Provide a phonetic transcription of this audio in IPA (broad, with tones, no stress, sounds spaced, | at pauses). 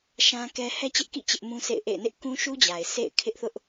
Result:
ʃ ã˦ k ɛ˦ h ɛ˦ t͡ɕ ɪ˦ ʔ k ḭ˦˨ t͡ɕ ɪ˦ ʔ m ũ˦ sʰ ḛ˦˨ ɪ̯ ʔ ḛ˦˨ ɪ̯ n ɪ˦ ʔ k ũ˦ ʃ u˦ d͡ʑ a˨ ɪ̯ sʰ ḛ˦˨ ɪ̯ kʰ ɪ˦ ʔ θ ʊ˦ ʔ